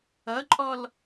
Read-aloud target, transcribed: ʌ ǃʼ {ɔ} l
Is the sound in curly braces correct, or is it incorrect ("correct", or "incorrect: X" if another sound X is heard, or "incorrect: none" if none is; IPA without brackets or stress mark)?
correct